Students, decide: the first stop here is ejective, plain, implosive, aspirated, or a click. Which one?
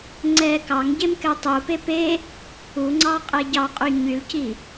click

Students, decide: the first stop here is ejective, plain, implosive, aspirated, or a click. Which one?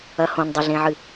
plain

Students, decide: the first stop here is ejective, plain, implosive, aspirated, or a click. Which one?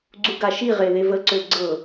click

